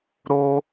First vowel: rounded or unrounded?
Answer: rounded